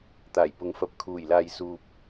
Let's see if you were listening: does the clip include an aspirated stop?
yes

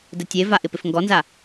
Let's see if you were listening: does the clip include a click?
no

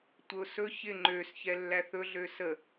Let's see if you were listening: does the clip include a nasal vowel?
no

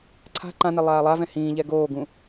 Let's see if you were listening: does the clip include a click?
yes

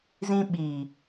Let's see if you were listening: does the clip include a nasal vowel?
yes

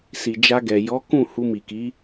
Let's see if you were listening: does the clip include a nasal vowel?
yes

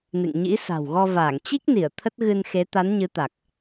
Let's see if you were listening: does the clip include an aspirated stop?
yes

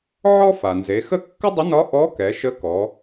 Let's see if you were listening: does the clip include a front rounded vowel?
no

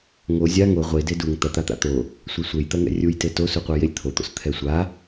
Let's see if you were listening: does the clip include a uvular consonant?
yes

